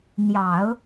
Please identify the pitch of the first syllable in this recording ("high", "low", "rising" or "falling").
low